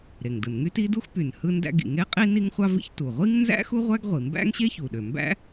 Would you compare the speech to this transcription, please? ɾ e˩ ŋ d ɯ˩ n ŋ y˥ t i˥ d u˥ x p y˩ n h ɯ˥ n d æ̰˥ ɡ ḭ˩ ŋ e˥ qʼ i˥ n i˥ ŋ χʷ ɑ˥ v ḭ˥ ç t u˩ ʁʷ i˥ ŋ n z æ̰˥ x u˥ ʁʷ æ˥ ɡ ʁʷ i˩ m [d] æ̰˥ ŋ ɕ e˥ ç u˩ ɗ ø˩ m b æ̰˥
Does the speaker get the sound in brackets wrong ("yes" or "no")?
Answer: yes